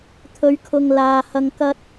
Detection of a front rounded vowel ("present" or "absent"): absent